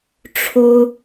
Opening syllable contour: high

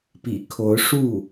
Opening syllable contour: low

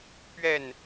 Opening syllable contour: falling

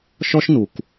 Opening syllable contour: high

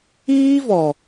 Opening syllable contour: high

